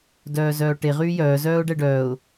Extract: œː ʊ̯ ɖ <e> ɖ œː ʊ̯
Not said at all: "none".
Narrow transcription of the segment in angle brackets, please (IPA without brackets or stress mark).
ɛ